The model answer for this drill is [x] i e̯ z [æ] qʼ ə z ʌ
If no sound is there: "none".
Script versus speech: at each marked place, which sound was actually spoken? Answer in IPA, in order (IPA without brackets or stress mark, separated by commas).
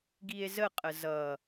ɡ, ə